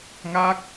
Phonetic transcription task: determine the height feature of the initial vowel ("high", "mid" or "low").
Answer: low